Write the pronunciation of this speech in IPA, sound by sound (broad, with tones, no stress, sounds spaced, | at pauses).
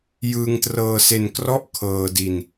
j ɯː˧ ŋ t r ɤː˧ s e˧ n k r ɔ˦˥ ʔ kʰ ɤː˧ d i˧ n